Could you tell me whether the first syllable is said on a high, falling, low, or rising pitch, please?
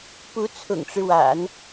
rising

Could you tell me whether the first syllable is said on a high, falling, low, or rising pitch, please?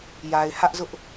low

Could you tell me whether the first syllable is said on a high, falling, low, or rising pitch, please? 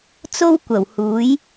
high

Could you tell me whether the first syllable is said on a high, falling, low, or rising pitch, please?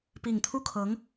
low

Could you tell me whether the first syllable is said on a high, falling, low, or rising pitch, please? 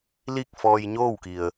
falling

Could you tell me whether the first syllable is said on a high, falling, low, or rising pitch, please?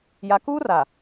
low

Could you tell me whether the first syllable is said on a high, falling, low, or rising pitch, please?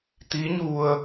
rising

